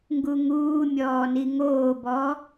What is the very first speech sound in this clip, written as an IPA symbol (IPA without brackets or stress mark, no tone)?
ŋ